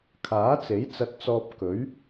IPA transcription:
kʰ aː˨˥ t͡s e˨˥ j t͡s ɐ˧ t̚ t͡s ɔː˧ p̚ k ɵ˨˥ ɥ

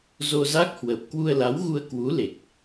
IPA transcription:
z o˧ z a˦˥ k̚ h w ə˨˩ p̚ k w u˧ ə̯ l a˨˦ w ɣ u˧ ə̯ k w u˨˦ l e˨˩ k̚

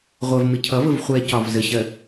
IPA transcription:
ʁʷ ɜ v m ɪ cʰ ʌ v ə v χʷ ɛ c ɒ v z ə ɕ ɜ

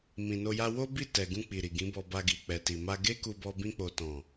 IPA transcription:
m ĩ˨ n o˧ j a˧ w o˦ b i˦˨ t ɛ˨ ɡ ũ˧ k͡p i˨ ɾ i˨ ɡ ĩ˨˦ b ɔ˧ b a˧ ɡ i˨ k͡p ɛ˨ t i˨ m a˧ ɡ e˦ k u˧ b ɔ˧ b ĩ˧ k͡p o˨ t ɔ̃˨

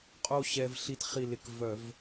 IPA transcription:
qʼ o˥˧ ɕ ɛ˧ v ɬ i˧ t χ i˧˩ l ɪ˧˩ k v œ˧˩˧ v

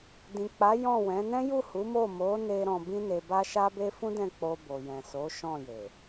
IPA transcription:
d ĩ˨ k͡p a˨˦ j ɔ̃˦˨ w ɛ̃˨˦ n ɛ̃˦ j u˦˨ h u˨˦ m o˦˨ m o˨˦ n e˧ ɾ ɔ̃˨ b ĩ˧ n e˨ b a˧ ʃ a˦ b e˦ f ũ˦ d ɛ̃˦˨ k͡p o˧ b o˨ j ɛ̃˨ s o˨˦ ʃ ɔ̃˦˨ j e˨

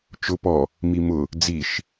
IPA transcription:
t͡ʃ ʊ p ɔ | m i m ʊ | d͡z i ʃ

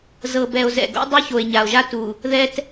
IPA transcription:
z ɤ˨ b ɛ˨ o̯ z ɛ̰˨ ɡ o̰˦ dˤ u˦ ç o˨ e̯ ɲ a˨ o̯ ʒ a˦ t u˨ | ð ɛ˦ t

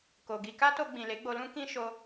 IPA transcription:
k o˨ ɡ i˧ k a˦ t o˧ ɡ͡b ĩ˨ l e˨˦ ɡ͡b o˧ l ũ˦ k ĩ˦ ʃ o˧

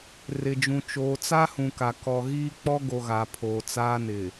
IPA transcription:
r ɪ˨ d͡ʒ ũ˨ t͡ʃ oː˨ t͡s a˦ h ũ˨ k a˨ k ɔ˨ ɣ iː˦ k͡p ɔ˦ ɡ o˨ ɣ a˨ pʰ oː˨ t͡s aː˦ n ɪ˨

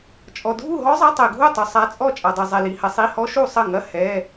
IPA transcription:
t͡ʃʼ ɔ˨ dʱ u˥˨ ɦ ɔ˦˥ zˤ ɐ˧˥˧ tˤ ɛ˨ ɡʱ u˥˨ tˤ u˨ sˤ a˦˥ t͡sʼ ɔ˥˨ t͡ʃʼ a˨ dˤ i˨ zˤ ɛ˨ l i˨ h ɐ˨˥ sˤ i˧˥˧ h ɔ˦˥ ʃ u˥˨ sˤ ɐ˥˨ ŋ ɐ˧˥˧ h ɛ˧˥˧

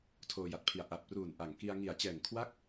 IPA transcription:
tʰ oː˧ j a˨˩ t̚ pʰ i˨˩ a̯ ʔ a˨˩ p̚ r uː˨˩ n ʔ a˨˩ ŋ k i˧ a̯ ŋ i˨˩ a̯ t͡ɕ ɛː˨˩ ŋ kʰ w a˥˩ k̚

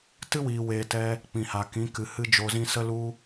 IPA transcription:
t ɨ˦ w iː˨ w eː˨ t ɛ˧ | k͡p ĩ˨ h a˨ k ĩ˨˦ k ɨ˨ h ɨ˦ d͡ʒ o˧ z ĩ˦ s ə˦ l u˦

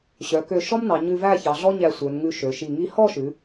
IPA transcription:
ɕ œ˩˧ k ø˧˩ ʃ ɔ˥ m n ɑ˩˧ ɲ ʉ˧ v æ˥˧ ç ɑ˩˧ ɮ ɔ˥ ɲ æ˧ sʷ œ˩˧ n ŋ ʉ˧ ʃ ø˩˧ ʃ i˧˩ ŋ i˧ h ɔ˥˧ ʃ ʉ˩˧

